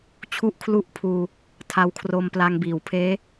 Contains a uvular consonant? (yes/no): no